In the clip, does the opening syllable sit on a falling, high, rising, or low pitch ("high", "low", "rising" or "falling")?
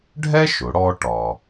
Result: high